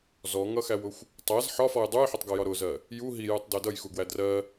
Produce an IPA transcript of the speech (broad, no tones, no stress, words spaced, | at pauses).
zɔŋʌxæwʊxʷ | tˤæz ħɒfɔj dˤujħʊtˤɡɒjɒ ɾʊzɜ | ju ɦijutˤdɜ dʌjxuɡwæ drɜ